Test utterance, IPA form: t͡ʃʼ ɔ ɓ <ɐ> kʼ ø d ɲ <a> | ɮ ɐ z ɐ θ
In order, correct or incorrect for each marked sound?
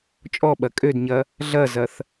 correct, incorrect

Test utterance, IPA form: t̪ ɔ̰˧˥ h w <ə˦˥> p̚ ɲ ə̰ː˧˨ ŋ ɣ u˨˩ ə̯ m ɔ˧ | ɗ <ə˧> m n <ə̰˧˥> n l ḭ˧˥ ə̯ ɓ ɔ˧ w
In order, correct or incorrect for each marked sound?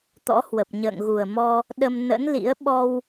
incorrect, correct, correct

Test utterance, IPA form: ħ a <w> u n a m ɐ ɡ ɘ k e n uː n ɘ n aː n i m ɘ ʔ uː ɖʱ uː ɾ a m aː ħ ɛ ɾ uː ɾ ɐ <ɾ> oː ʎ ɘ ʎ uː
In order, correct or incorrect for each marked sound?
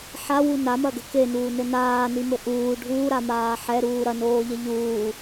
correct, incorrect

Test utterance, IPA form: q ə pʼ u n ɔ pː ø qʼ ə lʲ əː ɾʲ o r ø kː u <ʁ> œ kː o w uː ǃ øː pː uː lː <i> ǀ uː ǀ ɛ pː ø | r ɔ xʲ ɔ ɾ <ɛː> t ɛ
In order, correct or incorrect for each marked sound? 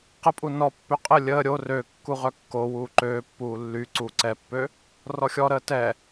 correct, incorrect, incorrect

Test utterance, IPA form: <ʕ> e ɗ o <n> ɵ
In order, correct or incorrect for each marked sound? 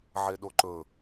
correct, incorrect

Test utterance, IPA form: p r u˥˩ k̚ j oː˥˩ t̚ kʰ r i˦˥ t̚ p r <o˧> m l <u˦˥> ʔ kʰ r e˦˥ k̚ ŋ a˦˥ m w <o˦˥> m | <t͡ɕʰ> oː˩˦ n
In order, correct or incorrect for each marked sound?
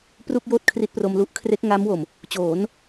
correct, correct, incorrect, incorrect

